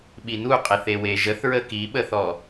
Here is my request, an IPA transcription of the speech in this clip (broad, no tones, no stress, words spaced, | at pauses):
ɓinuqʼeθe weʒəθɹə kiɓəθɔ